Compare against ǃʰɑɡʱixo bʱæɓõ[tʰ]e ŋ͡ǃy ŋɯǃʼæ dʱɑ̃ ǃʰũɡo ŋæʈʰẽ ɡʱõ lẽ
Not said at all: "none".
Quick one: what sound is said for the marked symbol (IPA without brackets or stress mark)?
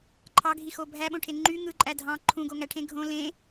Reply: ʈʰ